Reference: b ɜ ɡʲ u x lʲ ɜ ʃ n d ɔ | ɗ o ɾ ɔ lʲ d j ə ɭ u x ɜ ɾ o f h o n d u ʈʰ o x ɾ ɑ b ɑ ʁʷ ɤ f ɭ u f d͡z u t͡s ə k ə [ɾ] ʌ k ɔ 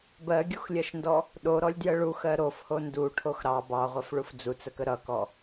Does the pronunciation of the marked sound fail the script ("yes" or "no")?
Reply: no